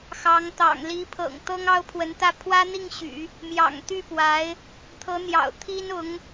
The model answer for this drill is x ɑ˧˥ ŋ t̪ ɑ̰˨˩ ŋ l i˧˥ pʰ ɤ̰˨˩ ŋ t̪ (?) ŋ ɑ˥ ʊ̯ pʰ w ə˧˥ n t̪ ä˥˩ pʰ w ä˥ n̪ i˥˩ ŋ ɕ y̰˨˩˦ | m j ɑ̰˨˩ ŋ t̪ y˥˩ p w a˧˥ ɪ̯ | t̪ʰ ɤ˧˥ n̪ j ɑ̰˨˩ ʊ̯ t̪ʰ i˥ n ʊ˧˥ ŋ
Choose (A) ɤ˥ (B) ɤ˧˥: A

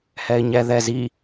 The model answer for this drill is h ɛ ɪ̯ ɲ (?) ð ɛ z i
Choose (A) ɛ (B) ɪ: A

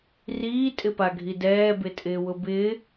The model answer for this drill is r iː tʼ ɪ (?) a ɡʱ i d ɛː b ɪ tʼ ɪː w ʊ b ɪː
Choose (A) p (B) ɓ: A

